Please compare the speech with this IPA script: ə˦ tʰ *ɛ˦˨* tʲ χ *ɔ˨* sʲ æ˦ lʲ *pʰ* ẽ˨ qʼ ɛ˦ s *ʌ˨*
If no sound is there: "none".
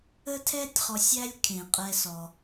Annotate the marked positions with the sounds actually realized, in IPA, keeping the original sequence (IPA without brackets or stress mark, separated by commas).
ɛ˦, ɔ˨, kʰ, ɔ˨